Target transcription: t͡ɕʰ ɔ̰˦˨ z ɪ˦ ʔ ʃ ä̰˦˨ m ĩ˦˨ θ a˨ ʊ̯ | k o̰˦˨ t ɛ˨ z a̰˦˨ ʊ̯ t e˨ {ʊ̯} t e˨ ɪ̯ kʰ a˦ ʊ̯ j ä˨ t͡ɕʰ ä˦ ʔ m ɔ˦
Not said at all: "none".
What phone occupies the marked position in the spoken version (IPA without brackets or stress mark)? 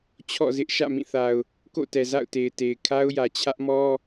ɪ̯